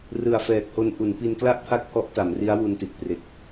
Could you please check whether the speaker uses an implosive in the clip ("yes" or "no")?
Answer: no